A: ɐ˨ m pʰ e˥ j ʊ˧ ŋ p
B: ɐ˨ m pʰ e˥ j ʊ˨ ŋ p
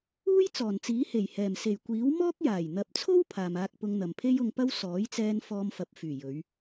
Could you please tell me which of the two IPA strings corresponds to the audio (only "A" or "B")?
A